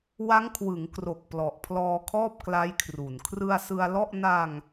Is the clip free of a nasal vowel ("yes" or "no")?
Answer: yes